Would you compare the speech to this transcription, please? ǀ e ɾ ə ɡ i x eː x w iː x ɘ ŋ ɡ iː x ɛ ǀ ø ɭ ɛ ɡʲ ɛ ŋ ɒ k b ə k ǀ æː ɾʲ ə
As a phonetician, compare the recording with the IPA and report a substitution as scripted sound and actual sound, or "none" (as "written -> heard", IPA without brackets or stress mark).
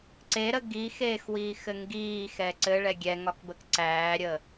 ø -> ɘ